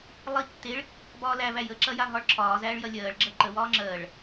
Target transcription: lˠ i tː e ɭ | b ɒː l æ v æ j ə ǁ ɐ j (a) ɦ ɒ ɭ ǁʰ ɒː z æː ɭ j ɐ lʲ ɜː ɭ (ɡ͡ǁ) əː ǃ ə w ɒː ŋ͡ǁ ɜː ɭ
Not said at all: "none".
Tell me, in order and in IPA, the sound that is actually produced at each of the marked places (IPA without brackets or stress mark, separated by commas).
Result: a, ɡ͡ǁ